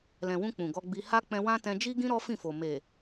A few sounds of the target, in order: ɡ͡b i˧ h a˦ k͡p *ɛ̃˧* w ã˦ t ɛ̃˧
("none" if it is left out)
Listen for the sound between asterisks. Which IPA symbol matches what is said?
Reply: ɛ̃˧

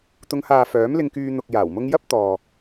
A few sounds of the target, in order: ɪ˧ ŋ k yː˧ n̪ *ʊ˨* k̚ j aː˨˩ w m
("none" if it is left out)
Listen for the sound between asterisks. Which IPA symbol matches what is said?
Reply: ʊ˨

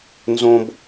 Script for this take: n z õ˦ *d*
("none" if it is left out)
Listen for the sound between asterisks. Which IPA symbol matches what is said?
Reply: b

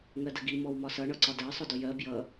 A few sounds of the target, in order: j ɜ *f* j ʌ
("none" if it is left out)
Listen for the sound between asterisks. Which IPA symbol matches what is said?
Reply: b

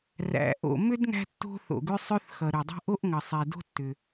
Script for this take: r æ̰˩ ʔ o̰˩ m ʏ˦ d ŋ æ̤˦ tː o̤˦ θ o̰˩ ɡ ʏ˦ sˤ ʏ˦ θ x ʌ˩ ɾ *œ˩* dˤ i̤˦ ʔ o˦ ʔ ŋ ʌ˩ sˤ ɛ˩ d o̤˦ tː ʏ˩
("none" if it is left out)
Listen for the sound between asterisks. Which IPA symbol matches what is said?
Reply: ø˩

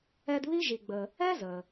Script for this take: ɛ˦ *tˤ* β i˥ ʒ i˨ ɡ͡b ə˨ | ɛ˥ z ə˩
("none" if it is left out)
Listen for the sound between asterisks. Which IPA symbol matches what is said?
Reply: d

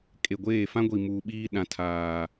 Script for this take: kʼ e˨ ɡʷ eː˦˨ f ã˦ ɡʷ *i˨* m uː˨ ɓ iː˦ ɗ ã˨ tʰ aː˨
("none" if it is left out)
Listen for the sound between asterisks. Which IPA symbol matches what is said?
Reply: i˨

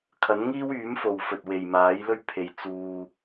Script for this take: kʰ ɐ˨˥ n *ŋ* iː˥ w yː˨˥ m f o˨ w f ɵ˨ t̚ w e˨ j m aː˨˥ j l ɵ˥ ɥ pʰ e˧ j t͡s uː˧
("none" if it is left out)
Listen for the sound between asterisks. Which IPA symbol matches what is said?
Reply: ŋ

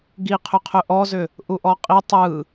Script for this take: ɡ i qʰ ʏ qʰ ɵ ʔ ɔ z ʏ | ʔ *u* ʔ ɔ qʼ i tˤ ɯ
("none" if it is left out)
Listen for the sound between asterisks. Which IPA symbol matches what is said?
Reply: u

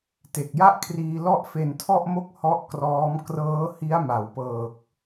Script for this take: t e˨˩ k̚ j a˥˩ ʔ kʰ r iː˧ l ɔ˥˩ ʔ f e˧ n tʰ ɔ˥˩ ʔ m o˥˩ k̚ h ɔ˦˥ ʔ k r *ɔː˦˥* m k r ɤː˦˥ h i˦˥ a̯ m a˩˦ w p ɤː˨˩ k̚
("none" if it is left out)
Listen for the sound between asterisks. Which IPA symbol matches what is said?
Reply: ɔː˦˥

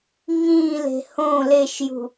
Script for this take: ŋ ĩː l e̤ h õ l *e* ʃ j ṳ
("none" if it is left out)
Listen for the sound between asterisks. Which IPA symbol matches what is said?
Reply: e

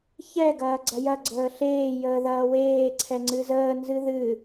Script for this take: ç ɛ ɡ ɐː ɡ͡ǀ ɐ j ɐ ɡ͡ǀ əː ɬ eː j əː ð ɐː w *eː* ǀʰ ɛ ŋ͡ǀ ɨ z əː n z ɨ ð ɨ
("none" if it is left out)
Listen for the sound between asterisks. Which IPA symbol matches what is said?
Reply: eː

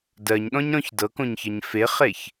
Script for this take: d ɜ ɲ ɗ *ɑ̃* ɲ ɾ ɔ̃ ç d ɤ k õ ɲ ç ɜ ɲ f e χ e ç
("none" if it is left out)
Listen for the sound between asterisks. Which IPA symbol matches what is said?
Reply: ɔ̃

